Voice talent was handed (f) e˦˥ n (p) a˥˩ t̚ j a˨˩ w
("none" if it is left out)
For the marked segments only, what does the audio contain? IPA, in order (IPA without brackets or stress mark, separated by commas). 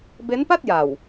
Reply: b, p